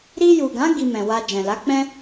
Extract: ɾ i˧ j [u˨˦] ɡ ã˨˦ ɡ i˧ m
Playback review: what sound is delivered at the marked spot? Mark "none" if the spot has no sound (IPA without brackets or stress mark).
u˨